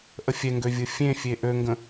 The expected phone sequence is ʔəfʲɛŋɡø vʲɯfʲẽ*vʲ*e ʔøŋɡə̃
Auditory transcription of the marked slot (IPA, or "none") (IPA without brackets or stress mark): fʲ